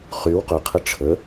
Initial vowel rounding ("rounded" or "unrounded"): rounded